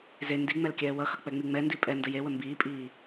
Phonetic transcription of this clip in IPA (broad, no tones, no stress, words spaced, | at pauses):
ze ndiŋ͡mɛl kʲɛːwʌxʌ k͡pɛŋ͡miŋ͡mɛndi pʼɛ ndəjewə mbiːpʼiː